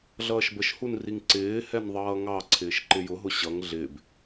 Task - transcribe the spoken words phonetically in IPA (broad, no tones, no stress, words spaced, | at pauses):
ɮʌːʃbəʃhunriŋ ǀɪː hɛnðˤʌːŋɑ ǀʰɪːʃǃɪjʊɦʊ ɕʌŋ ɮɪːb